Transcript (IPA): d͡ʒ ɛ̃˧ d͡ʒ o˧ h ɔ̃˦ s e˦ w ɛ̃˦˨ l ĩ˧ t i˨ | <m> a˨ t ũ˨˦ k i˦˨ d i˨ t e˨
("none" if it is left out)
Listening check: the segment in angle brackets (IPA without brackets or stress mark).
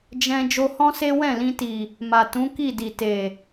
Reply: m